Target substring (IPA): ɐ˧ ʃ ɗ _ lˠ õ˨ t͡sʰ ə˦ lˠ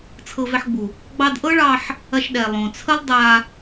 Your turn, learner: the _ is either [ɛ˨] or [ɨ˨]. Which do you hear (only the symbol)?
ɛ˨